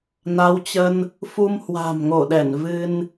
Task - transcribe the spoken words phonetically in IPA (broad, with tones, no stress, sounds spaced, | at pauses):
n a˨˦ w t͡ɕ ə˧ n | f u˧ m h w a̤˨˩ m ŋ o˧˩ ɗ ɛ˧˩ n v ɨ˧ n